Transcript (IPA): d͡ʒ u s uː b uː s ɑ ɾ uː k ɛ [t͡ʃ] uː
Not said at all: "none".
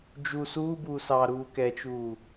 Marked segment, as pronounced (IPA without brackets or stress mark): t͡ʃ